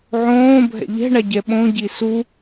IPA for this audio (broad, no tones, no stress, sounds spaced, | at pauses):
ʕ õː bʱ ɛ̰ ʎ ɛ̤ ɳ a ɟ ɛ ɓ õ ɟ i s u